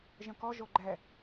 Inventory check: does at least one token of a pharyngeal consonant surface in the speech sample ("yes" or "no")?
no